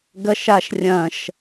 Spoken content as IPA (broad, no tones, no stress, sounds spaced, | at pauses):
ɡ ɐ ʃ a ʃ rʲ ɐ̃ ʃ